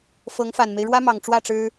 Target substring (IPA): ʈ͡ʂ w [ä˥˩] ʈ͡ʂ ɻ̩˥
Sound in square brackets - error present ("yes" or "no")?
no